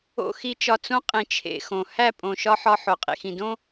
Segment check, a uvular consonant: present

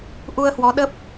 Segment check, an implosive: present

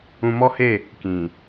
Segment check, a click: absent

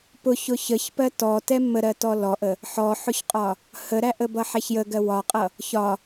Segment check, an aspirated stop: absent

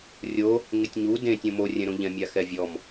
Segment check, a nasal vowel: present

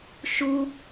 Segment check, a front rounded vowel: absent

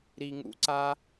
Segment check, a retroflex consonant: absent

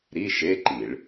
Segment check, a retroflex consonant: present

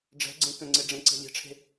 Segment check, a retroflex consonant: present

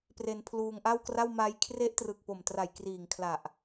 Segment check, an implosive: absent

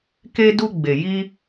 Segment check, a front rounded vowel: absent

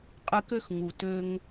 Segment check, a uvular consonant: present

